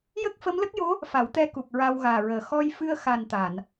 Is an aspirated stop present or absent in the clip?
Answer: absent